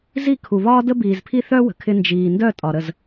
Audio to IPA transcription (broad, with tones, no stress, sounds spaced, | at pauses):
z i˦˨ kʰ u˨ β ɒː˦ d ə˦ b iː˨ z pʰ i˦ θ œ˦ w ə̤˨ kʰ ɪ˦ n d͡ʒ iː˨ n d œ˦˨ tʼ ɒ˨ ɾ ə˦˨ z